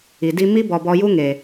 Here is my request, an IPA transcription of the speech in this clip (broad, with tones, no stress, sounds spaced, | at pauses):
i˨ d i˧ m i˦ b ɔ˨ b ɔ˧ j u˦ ŋ e˨